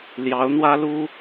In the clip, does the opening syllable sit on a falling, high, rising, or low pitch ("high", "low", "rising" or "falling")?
rising